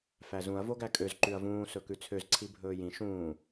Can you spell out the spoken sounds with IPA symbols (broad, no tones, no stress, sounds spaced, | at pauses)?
f æ z ũ ɐ̯ v o ɡ æ kʼ ø z ǃ ʉ ɐ̯ v ũː s ɵ k ʉ t͡sʰ ø z ǀʰ i bʱ ɵː j ĩ ʃ ũː